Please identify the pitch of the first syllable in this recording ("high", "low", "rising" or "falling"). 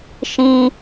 high